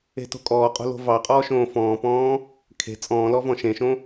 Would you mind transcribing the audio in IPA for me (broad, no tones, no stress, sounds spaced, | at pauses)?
e̤ t o̤ kʼ ɔː qʼ o̤ l o̤ v ɑ qʼ ɔː ʃ õː f ɔ̃ː p ɔ̃ː | kʰ e̤ t͡sʼ ɔ̃ː l ɔ v ɔ̃ ʃ ẽ ʃ õ